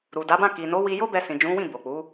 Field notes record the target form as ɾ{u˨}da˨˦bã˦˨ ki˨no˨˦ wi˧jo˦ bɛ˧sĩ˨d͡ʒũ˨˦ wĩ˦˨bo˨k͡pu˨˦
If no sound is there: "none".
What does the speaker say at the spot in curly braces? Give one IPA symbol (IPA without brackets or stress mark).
u˨